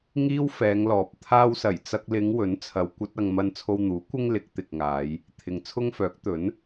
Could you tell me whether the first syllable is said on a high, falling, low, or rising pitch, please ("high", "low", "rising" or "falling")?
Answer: high